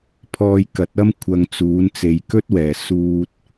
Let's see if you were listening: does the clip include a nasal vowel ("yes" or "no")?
no